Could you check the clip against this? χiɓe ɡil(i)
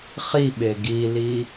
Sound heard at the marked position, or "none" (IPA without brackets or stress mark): i